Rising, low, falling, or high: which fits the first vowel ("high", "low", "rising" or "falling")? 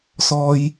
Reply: high